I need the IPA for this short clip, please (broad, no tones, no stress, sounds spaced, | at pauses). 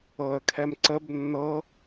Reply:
ɤ ə̯ kʰ ɛ m ǀ ə b nː ɤ